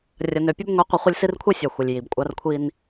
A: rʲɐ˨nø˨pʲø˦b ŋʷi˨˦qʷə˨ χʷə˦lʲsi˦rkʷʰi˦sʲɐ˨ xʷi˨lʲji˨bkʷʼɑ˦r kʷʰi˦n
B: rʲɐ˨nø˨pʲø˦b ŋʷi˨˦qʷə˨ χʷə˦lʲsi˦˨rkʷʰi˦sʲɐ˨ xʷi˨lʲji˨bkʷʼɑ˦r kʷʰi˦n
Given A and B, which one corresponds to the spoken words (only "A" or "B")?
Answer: A